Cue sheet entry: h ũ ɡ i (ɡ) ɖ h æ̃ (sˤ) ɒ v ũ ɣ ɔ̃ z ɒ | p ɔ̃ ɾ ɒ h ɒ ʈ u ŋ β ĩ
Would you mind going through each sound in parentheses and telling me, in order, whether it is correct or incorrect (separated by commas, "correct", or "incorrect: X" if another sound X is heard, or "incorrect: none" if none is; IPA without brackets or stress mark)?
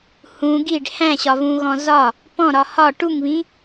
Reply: incorrect: none, incorrect: ɕ